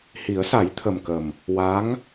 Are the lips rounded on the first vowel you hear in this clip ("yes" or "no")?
no